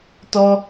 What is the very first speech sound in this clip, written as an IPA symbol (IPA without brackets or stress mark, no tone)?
t